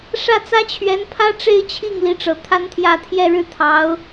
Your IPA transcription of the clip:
ʂä˥˩t͡sä˥ t͡ɕʰɥɛ˧˥npʰä˥ ʈ͡ʂe˥˧ɪ̯t͡ɕʰi˥˩ŋ li˧˥ʈ͡ʂɤ˨˩ t̪ʰa˥nt̪ʰjä˥˧ t̪ʰjɛ˥˧ɻɻ̩˥˩t̪ʰɑ˧˥ʊ̯

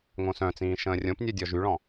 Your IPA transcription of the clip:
ŋõsœ̃t͡sĩː ʃə̃ːrʲõpnʲœ dʲɔʒyɭɔ̃

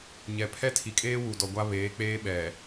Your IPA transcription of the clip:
ɲɛ˨pʰɛ˦ tʰi˨kʼeː˦wu˨dɔ˨ ɡʷa˦βeː˨˦k͡peː˦ɓɛ˨

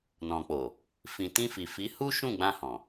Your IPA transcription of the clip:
nɔ̃˨k͡po˨ | fĩ˨ tĩ˧fi˨fi˨˦ hu˦ʃũ˦˨ɡ͡bã˧ hɔ̃˨

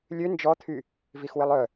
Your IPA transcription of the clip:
lʲø nd͡ʒɔt̪ʰy | vixwɪlˠœ

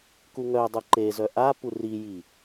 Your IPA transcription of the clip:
kuŋœdˤu ǃezœ ʔa puriji

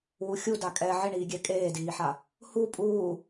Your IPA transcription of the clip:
wuxʲuda kʼɛ ʕɪɳiːɡʲɛ kʼeːdiːħa | hu pʼuː

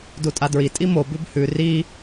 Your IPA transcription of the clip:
dutʼadɹi tʼimo bʉbhʉ ri

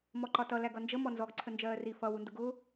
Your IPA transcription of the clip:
mɔǃɒtʌ læɡʌnd͡ʒə mɔnzɔɡ ǀʰənd͡ʒɜːri fʌ wundʊɡʊː

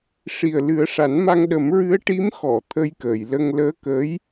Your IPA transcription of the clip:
ʂi˨˩ə̯lɨ˨˩˦ə̯ʂa˨˩˦nma˧ŋ ɗə˨˩˦mɹɨ˧˥ə̯ ʈi˧˥m xɔ˨˩˨ t̪ʰə˧jkəː˨˩˨jlə˧ŋ ləː˧˥kəː˧˥j

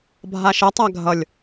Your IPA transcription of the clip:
bʱaʃʌ tˤaɡʱʌlʲ

